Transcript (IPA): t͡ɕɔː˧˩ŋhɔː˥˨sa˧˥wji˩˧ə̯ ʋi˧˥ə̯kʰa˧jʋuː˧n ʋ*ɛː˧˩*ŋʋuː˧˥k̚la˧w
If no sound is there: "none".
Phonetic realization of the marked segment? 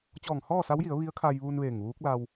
eː˧˩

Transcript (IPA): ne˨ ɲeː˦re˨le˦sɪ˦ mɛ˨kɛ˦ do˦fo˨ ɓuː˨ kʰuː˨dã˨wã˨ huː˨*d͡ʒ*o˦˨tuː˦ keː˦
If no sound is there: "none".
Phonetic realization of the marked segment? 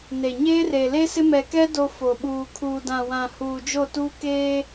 d͡ʒ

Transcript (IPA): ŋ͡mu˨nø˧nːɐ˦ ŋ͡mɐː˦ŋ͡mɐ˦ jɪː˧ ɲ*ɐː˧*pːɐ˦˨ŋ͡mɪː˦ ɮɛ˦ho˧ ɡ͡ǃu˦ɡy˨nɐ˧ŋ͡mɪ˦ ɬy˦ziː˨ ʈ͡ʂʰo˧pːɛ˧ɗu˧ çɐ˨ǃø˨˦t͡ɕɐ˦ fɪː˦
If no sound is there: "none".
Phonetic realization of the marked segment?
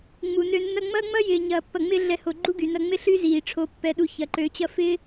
ɐː˧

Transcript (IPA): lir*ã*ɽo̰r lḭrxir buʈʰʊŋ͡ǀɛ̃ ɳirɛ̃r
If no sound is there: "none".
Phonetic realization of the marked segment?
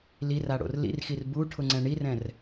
a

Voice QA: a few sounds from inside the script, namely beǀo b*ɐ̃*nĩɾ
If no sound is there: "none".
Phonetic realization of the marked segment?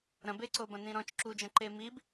ɐ̃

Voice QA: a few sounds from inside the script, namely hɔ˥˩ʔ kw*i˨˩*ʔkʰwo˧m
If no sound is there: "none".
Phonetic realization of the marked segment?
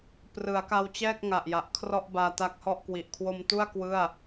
i˨˩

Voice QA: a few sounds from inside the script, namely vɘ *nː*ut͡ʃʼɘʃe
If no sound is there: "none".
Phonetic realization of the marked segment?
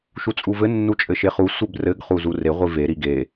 nː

